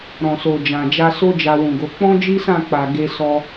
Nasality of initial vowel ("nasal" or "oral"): nasal